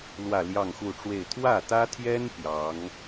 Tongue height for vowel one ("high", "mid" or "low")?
low